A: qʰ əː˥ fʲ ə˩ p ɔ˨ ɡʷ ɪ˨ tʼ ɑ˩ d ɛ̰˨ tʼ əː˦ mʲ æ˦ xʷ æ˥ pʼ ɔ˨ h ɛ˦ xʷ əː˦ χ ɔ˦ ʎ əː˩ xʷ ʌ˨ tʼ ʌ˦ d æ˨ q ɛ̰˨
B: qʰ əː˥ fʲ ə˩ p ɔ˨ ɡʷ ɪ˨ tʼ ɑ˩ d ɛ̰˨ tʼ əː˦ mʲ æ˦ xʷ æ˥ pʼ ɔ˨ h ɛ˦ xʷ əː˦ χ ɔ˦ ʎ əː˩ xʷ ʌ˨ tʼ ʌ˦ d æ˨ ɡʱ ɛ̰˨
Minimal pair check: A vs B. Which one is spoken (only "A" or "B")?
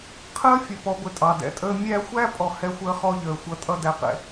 A